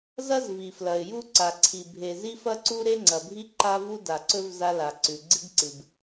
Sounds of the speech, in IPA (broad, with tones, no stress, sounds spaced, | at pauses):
z ɐ˥ z v i˩ f l ɐ˩ ɪ̯ j u˥ ǀ a˩ ǀʰ i˩ bʱ e˩ z i˥ f ɐ˥ ǀ u˥ ɾ e˥ ŋ͡ǀ ɐ˩ bʱ i˥ ǃ a˥ v u˥ d a˩ ǀ ɵ˥ v z a˥ l a˩ ǀ ʉ˩ ɡ͡ǀ ɨ˥ ɡ ǀ ɨ˩ b